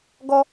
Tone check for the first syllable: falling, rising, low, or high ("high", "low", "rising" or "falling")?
high